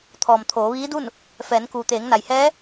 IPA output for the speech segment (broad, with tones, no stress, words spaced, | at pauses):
t̪ʰɔː˩mt̪ʰoː˩˧ʋiː˧˥du˥˨n | fɛː˩˧n kuː˩t̪eː˩˧ŋna˩jhɛː˧˥